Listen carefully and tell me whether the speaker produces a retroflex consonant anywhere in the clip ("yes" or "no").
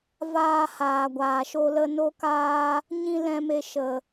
no